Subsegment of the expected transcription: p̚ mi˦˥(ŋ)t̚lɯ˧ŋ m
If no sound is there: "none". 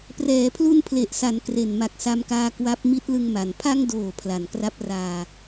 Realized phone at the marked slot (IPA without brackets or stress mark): none